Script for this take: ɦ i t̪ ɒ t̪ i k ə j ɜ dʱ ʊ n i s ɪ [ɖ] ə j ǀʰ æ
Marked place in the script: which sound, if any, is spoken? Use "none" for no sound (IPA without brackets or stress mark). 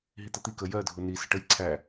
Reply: ʈ